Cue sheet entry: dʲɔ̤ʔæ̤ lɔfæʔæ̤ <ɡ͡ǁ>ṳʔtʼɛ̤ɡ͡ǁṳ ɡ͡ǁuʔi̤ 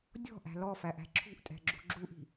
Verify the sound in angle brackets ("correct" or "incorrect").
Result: incorrect